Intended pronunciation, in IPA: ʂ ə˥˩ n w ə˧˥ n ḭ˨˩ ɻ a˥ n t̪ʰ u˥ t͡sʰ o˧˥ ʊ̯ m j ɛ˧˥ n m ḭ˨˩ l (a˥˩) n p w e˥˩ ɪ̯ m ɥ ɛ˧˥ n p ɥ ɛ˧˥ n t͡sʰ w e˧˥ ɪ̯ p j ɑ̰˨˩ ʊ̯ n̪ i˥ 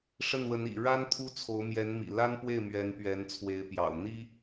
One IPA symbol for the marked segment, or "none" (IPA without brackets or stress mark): a˥